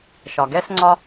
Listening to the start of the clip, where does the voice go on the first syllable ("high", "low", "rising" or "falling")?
low